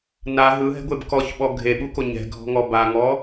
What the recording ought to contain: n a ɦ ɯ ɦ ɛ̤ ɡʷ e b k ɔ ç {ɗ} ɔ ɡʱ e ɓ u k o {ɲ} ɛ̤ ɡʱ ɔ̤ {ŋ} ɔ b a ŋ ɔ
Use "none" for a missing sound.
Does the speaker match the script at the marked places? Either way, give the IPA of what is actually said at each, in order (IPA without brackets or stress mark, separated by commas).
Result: ɓ, ɲ, ŋ